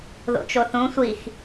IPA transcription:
ðo̰t͡ʃoθũ sʷix

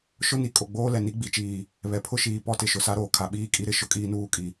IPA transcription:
ʃʊ˦ ni˨kʼo˨ ɡ͡boː˦ lɛ˨ni˦ɡ͡bi˨˦t͡ʃiː˨ | βɛ˨pʰʊ˦ʃiː˨ pɔ˦tɪ˨ ʃʊ˨sa˦ɾoː˨ kʰa˨ɓiː˦˨kʼi˦ɾɪ˦ ʃʊ˦kʼiː˦nuː˦˨kʼi˨

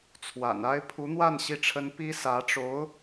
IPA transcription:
t͡sʰwa̰˨˩na˥ɪ̯ pʰu˧˥n̪wa˥˧n ɕi˥˩ʈ͡ʂʰə˥n pi˥sä˧˥ʈ͡ʂo˧˥ʊ̯

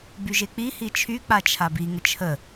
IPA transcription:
byʒek͡pi hit͡ʃʰy k͡pat͡ʃʰabi ŋət͡ʃʰə

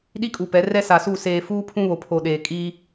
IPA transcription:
ɗi˦kʼu˨pɛ˨˦ rɛ˦sa˨su˦˨ seː˨ fuː˦pʰũ˦ βo˨ pʰo˨ɗeː˨ kʼi˦

